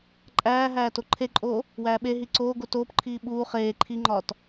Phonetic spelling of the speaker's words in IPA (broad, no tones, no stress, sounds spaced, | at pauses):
ǃʼ æː ɦ æː t o ǃʰ e ǃʼ oː | w æː ɓ e ɦ i ǀ oː ɡ o t oː p ǃʰ iː ɓ uː χ eː ǃʰ i ŋ͡ǃ ɒː t